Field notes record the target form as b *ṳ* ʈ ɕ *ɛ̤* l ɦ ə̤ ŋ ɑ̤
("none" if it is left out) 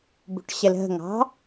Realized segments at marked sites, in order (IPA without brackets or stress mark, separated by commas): ṳ, ɛ